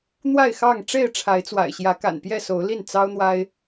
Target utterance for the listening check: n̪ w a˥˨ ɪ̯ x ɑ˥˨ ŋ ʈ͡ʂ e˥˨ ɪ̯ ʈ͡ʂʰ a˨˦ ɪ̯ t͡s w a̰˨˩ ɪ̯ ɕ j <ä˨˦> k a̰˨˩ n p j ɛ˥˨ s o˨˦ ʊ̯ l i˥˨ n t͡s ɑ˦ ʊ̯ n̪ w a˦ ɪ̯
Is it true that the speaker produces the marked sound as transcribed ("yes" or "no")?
yes